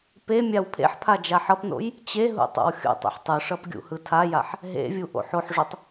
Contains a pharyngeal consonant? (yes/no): yes